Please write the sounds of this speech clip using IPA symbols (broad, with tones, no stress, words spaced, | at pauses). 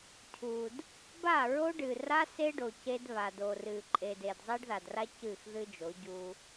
cʰu˨d | ba˦˨ɹo˦ɖɨ˨ra˦ se˦ɖo˨ ce˦dβa˨ do˨rɨ˨ ǃʼe˨de˨d zˤe˦ɖða˨dra˦ cɨ˦˨xðɨ˦d͡ʒo˨˦ ɟu˦